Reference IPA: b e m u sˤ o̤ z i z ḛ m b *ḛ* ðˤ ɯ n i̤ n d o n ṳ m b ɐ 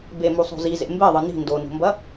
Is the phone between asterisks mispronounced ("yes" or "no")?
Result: yes